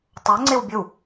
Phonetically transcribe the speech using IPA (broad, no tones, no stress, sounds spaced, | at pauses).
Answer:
tˤ o ŋ͡ǀ e w bʲ ɵ w